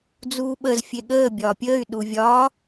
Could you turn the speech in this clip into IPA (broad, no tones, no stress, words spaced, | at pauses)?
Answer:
d͡zuːɓəzfʲe ɠəː bʲɒːpʲəːy̯ɗu vʲɒː